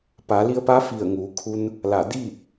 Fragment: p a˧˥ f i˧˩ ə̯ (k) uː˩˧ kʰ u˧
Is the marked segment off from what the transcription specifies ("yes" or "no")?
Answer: yes